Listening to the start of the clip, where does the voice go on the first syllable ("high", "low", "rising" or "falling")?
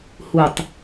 low